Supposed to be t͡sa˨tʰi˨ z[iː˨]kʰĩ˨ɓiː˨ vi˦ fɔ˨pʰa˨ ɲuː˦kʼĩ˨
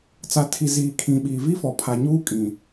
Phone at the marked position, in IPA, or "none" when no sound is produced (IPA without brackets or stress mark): iː˨